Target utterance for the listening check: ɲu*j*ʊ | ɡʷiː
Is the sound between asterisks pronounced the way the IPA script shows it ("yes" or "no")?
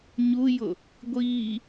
yes